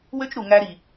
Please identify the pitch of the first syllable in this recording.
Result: high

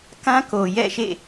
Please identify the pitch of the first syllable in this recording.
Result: high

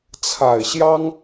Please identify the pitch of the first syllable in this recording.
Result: low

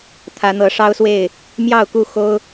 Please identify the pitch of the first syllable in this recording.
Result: rising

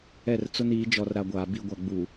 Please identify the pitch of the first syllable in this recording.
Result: falling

